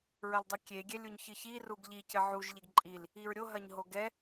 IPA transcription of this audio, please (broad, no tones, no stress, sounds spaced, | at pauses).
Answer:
ɹ ɐ l dˤ ɘ kʲ e ɡʲ ɛ lʲ u ɲ ç ɨ ç i r u ɡ ʎ i c ɘ ʕ u ʒ ʎ e ɡ ǃʼ i l | i ɹ ɾʲ o ɦ ɐ ɲ ɦ o ɡ ɛ